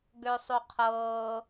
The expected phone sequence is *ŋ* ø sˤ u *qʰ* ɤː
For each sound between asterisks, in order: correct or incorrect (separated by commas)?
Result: incorrect, correct